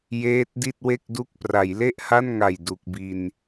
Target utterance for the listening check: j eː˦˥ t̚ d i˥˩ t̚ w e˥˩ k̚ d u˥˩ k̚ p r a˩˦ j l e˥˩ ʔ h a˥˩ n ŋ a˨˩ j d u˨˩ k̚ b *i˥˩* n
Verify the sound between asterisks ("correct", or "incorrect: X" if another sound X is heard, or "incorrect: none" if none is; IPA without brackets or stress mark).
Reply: incorrect: i˧